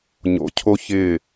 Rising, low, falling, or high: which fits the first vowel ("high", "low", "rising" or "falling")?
low